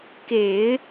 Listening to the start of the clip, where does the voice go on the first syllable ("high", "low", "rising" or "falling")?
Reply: low